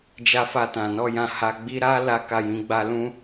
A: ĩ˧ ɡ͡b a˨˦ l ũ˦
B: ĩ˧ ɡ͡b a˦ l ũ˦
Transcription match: B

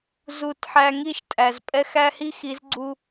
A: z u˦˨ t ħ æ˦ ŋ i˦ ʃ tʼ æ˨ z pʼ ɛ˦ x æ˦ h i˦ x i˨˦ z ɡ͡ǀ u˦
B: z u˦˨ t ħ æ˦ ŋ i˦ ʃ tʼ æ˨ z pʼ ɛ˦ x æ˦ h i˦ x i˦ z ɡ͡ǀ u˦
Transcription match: A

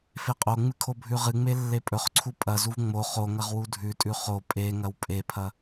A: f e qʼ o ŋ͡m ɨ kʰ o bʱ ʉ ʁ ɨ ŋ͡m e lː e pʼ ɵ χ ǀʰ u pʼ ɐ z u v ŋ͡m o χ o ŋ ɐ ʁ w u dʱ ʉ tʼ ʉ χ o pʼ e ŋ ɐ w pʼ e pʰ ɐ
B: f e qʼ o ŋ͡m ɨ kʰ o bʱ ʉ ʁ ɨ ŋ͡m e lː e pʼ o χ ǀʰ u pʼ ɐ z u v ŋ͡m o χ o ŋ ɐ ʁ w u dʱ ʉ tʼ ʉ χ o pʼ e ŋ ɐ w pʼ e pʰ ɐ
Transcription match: A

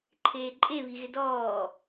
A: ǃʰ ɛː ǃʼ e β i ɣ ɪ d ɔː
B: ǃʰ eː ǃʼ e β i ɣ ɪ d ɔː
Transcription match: B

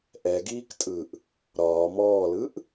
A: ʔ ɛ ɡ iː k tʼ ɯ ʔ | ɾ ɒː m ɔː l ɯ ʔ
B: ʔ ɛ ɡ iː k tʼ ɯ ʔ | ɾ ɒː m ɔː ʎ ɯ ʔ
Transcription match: A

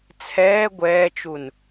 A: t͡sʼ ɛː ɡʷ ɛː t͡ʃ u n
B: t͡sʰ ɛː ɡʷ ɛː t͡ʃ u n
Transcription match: B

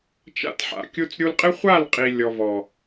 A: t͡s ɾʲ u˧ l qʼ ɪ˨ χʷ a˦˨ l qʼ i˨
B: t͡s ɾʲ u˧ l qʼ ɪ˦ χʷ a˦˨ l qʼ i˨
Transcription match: B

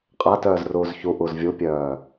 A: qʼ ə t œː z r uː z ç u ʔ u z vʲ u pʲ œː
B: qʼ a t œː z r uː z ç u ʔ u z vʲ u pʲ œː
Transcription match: B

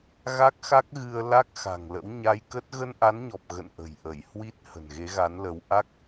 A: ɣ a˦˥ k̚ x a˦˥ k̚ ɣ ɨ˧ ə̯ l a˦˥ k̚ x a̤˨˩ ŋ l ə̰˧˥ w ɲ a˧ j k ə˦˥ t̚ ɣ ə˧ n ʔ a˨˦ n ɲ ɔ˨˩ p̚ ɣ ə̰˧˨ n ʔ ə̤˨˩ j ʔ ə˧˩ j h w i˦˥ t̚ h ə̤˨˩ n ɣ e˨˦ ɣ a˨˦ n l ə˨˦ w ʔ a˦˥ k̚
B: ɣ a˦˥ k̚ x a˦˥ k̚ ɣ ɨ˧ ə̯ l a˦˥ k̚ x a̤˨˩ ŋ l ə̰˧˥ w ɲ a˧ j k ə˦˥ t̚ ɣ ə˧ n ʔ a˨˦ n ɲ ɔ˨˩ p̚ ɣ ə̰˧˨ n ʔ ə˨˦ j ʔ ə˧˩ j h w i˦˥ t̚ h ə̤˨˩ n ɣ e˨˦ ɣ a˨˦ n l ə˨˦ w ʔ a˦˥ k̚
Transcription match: A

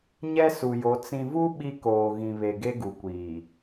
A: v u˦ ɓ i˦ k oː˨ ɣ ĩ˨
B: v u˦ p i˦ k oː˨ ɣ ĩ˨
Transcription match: A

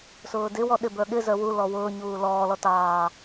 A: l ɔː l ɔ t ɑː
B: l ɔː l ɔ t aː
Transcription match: A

